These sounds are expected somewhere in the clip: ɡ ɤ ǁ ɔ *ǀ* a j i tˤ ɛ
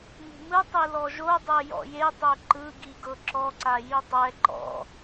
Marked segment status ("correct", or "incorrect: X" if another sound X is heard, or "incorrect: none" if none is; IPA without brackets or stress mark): correct